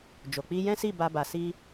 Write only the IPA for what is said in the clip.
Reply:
d͡ʒo˨ k͡pi˧jɛ̃˦si˦˨ ba˧ba˨si˧

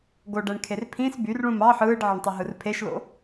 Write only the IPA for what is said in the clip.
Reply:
ɡoɖæɳkʰer pʰĩs byrɭũm ɑ ħɯːɖʕeɳtˤɯɦɯr pʰeʃlo̰

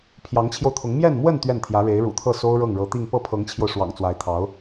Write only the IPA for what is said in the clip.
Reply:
pʰjɑ˧˥ŋt͡ɕʰjo˧ʊ̯t̪ʰʊ˧˥ŋ mjɛ˥˧nmwə˥˧n t̪ɥɛ˥˩nt̪ʰjä˧˥ ɻe˧˥ɪ̯ɻṵ˨˩t̪ʰɤ˥˩ so˥ʊ̯ɻɤ˥˩ŋɻɤ˧˥t̪i˥˧ŋ pɤ˥˩pʰɤ˧˥ŋt͡ɕʰjo˧ʊ̯ ʂwɑ̰˨˩ŋt͡swa˧˥ɪ̯t̪ʰɑ˧˥ʊ̯

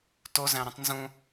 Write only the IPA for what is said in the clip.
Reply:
tozæ̃ɾũtˤ nzũ

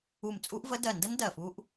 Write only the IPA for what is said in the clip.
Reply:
u˧˩mt͡sʼu˦˥ʔvə˦˥ dɜ˧˩ndə˦˥n dɜ˧˩fu˦˥ʔ

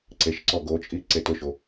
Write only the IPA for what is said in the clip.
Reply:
ǀeʃǀɔ ɡot͡ʃʼi ǀetʊʃo

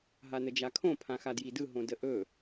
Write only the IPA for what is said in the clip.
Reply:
ɦanəd͡ʒakʰõ pʰãxadjidɯ ɦõdəʔɵ

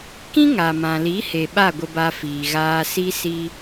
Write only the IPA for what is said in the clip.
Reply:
kĩ˦ŋa˨mã˨li˨˦ he˨ ɓa˦˨ɡʷə˧ba˧fiː˨ ɣaː˧si˦ si˦

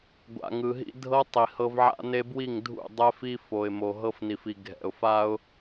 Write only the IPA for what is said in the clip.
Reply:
ɡʷa̰˨ŋɯ˨ɦḭ˦ dʱɤ˦ tˤi˨hɤ˦v ʕa̰˦ne˦bwi˦˨ŋdʱṵ˦˨ dˤɛ˦fi˦fo˨ɪ̯ mo˨ɦɤ˦fni˨fi˨ ɡʱɛ̰˨ʊ̯fa˦ʊ̯

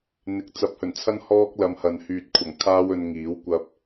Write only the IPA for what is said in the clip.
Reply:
n̪ɪ˨˥k̚t͡sɐ˨˥p̚hɵ˨˩nt͡sʰɐ˥n hɔː˥k̚lɐ˧mhɐ˨n hyː˨t̚kʷʰɐ˨˩ŋ kʰaː˥wɵ˧nŋiː˨˥w kʷɐ˧p̚

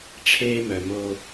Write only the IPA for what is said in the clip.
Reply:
ʈ͡ʂʰeː˦mœ˨mo˦

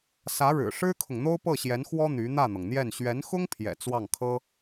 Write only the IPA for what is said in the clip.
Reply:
sä˧˥ɻɻ̩˨˩ʂɻ̩˥kʰʊ˨ŋ n̪o˥ʊ̯pɤ˥˩ɕjɛ˧˥nxwɔ˥ n̪y˧˥ n̪ä˥˩n̪ɤ˩ŋn̪jɛ˥˩n ɕɥɛ˧˥nxʊ˥ŋpʰjɛ̰˨˩ t͡swɑ˥˩ŋkʰɤ˥

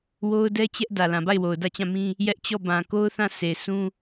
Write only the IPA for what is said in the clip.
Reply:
wo˦ʊ̯dɛ˦ t͡ɕɛ˦ʔ dä˨lã˨ba˦˨ɪ̯ wo˨ʊ̯dä˦˨t͡ɕã˦˨mĩ˦ | jɛ˦ʔt͡ɕɔ˦˨ bã˨ko˦ʊ̯ θã˦˨sʰe˨ sʰũ˦

